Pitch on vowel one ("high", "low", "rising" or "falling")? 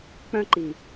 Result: high